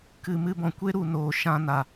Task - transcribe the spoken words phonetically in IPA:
kɨ˨ mɨ˧bɔ̃˨kʷe˦ɾu˨ noː˨ ʃã˧na˨

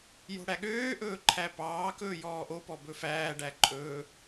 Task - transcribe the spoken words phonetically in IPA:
jo̤ɽæɠøːʔɵː ǃʰæpɑːkɵː jɔːʔopɔ bɵfæːɖæ ǃʼɵː

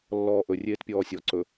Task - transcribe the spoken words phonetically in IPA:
lːɔːʔɵ rʲeːtpʲɔːsʲɔ ǀɵ

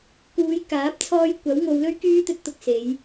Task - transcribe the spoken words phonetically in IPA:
kuː˨˧jkaː˨˥p̚t͡sʰɔː˧j kʷɐ˨˥w ŋo˨˧wlɵ˥ɥkyː˥ t̪ɵ˧t̚t̪ʊ˧k̚se˨˧j

